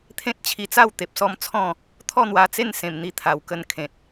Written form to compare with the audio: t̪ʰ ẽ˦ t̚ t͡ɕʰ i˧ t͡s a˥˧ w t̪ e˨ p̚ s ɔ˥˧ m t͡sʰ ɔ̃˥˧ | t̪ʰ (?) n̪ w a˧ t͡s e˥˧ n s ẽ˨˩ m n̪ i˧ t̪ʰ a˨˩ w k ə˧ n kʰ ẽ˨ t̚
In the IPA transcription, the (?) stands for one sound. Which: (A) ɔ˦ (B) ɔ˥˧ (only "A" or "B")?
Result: B